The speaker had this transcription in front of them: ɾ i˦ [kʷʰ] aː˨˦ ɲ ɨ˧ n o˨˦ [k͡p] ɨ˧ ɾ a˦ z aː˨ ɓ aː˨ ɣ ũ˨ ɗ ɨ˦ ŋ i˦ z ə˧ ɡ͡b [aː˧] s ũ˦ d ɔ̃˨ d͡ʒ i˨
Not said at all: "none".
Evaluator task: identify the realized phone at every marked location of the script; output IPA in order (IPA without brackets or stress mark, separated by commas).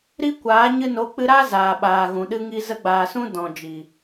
kʷ, k͡p, aː˨